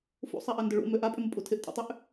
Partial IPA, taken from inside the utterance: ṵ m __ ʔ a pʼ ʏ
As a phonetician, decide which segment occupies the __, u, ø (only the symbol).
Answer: ø